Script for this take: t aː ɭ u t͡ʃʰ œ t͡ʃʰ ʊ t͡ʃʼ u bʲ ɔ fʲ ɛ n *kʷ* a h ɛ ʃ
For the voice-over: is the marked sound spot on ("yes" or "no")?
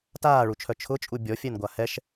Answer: no